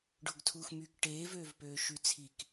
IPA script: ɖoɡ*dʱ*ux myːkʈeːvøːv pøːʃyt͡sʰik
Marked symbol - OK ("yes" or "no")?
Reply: no